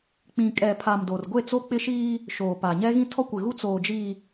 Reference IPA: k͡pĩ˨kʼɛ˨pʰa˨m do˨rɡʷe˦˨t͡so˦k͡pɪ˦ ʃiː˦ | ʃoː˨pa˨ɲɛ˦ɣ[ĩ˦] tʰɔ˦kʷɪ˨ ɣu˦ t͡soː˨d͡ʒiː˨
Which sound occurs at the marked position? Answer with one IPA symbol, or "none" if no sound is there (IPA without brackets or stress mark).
ĩ˦